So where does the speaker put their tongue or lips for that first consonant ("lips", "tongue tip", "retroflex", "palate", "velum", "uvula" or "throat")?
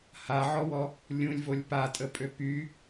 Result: throat